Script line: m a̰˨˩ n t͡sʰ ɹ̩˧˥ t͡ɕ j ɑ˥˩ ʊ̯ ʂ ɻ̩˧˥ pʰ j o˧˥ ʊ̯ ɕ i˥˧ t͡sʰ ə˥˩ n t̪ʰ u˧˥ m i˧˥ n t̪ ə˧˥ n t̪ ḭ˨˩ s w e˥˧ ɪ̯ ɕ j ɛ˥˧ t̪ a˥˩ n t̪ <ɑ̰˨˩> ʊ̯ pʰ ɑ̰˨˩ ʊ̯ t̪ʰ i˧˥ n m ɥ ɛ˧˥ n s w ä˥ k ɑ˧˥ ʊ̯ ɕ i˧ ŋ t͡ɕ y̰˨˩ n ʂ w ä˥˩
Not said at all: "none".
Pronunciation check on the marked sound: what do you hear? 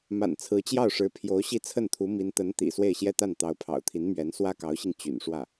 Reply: ɑ˧˥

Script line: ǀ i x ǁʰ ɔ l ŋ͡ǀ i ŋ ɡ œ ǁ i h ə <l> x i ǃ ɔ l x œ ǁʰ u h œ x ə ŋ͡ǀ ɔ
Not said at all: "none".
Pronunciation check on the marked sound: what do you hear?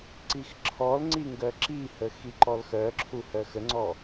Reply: none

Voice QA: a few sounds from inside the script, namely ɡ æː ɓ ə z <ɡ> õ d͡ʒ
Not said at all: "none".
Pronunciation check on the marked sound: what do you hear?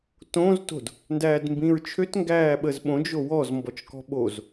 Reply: ɓ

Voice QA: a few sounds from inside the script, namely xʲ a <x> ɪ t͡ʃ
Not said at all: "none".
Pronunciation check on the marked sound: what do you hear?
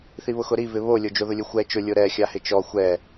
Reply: h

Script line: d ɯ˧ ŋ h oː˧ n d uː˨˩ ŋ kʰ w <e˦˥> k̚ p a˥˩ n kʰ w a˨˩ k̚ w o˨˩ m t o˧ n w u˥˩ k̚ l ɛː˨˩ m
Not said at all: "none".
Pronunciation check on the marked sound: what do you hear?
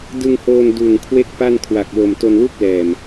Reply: e˥˩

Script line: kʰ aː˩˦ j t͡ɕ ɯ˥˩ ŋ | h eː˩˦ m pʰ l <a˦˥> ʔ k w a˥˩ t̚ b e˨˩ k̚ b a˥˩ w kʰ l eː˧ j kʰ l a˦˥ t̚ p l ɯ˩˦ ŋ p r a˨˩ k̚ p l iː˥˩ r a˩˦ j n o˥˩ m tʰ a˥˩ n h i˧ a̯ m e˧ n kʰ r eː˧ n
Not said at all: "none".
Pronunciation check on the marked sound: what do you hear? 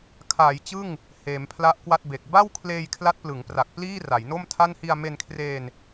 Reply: a˦˥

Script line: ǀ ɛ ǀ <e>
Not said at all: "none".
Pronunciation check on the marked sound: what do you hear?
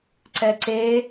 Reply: e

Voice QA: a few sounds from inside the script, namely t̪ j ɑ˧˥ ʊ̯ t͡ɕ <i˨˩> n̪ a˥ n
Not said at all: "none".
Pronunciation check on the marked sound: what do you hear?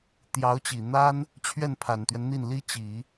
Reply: i˨˩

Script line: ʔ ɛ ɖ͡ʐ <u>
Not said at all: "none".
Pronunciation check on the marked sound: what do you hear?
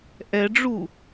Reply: u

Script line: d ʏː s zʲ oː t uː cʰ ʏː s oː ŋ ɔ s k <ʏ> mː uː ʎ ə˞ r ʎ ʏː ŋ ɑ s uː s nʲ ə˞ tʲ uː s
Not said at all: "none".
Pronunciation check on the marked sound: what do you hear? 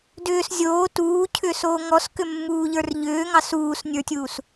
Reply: ʏ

